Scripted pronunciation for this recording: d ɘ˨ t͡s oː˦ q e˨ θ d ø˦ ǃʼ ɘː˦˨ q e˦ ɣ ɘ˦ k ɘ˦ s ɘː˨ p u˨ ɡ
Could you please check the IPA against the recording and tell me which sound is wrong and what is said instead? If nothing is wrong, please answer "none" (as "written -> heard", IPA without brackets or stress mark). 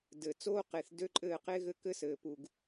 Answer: none